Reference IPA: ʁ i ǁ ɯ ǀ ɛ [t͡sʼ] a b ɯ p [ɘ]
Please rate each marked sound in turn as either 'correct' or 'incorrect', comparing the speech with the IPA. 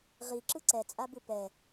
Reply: correct, incorrect

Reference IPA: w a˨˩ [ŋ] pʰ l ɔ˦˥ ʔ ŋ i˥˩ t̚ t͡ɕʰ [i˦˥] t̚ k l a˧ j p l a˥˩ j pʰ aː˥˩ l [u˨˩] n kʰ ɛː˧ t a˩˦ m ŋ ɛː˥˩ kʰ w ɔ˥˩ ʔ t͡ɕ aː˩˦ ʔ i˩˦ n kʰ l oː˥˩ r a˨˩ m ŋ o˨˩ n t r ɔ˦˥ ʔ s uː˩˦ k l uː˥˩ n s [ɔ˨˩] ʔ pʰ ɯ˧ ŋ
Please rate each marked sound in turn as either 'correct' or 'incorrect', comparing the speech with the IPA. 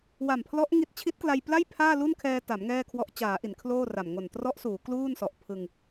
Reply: incorrect, correct, incorrect, correct

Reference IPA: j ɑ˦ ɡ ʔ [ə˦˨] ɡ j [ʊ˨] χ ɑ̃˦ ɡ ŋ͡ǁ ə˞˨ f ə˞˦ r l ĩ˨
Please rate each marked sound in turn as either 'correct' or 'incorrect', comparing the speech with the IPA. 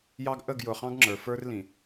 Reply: correct, correct

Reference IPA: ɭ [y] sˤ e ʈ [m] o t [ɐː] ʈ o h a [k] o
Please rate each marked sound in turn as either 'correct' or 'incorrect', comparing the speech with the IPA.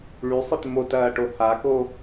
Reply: correct, correct, correct, correct

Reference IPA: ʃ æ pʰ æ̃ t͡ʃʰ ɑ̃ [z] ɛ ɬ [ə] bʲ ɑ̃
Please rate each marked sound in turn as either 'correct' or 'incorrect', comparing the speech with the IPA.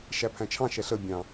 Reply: incorrect, correct

